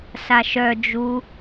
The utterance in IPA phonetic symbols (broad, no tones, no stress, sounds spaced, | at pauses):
s a ʃ œ d͡ʒ u